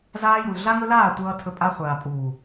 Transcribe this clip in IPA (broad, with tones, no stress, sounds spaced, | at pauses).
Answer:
z aː˦ j u˨ l ɮ a˦ ŋ ɵ˦ l aː˦˨ tʷ ʌː˦ tʰ ɵ˦ pʼ a˦ χʷ aː˨ pʼ uː˨